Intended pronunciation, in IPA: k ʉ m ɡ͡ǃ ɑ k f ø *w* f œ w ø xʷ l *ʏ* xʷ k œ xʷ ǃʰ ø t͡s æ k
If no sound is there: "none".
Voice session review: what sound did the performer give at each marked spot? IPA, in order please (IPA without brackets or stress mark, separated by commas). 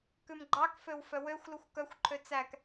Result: w, u